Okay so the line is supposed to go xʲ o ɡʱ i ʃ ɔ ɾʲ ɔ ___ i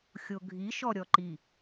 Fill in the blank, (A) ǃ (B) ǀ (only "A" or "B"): A